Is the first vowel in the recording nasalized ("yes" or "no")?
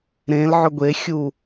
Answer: yes